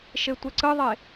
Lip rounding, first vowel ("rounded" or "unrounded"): unrounded